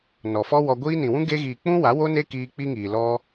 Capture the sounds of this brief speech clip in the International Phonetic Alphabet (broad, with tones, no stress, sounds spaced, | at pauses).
n ɔ˨ f ɔ˦ w ɔ˧ ɡʷ iː˦ n ĩ˨ w ũ˦ ɡ e˧ ɣ iː˨ k͡p ũ˦ w a˨˦ w o˦ n e˦ k iː˧ k͡p i˦ ŋ iː˨ l ɔ˦